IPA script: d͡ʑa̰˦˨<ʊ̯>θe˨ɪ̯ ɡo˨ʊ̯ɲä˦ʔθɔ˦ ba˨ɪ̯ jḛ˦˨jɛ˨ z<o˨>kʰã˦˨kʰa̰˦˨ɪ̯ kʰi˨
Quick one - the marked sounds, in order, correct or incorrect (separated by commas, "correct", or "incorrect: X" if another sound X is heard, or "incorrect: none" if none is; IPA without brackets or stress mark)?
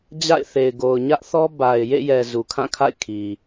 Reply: incorrect: ɪ̯, incorrect: u˨